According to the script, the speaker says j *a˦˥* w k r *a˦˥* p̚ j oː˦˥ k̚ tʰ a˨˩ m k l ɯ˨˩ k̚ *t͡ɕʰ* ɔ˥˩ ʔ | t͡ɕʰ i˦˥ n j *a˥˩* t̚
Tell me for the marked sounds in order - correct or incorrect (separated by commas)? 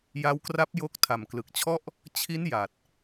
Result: correct, correct, correct, incorrect